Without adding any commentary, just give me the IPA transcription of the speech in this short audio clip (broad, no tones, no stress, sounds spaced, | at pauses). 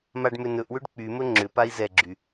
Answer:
m a ɖ m ʏ n ɵ ʔ w ʏ ɖ k͡p y m ɵ ŋ͡ǁ ʏ p a i̯ z ɛ ɡ͡ǁ y